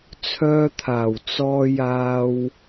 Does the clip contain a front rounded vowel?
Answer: yes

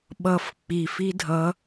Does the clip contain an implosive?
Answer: yes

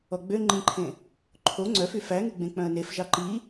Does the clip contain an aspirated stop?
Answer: yes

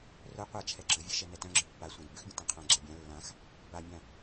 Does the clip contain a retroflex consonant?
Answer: no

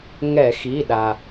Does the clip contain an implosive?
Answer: yes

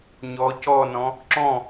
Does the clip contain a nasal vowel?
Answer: yes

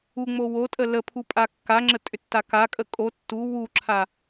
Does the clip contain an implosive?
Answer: no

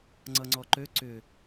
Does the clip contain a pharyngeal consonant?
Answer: no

